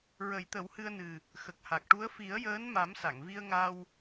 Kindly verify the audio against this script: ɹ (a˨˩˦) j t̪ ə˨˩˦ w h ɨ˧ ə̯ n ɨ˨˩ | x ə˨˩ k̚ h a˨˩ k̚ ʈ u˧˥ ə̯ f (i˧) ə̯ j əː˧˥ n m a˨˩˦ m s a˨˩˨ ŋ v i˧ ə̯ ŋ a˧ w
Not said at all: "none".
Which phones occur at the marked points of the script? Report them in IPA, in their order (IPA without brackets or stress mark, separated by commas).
ə˨˩˦, i˨˩˦